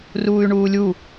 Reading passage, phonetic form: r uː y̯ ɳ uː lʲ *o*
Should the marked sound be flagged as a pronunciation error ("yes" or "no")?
yes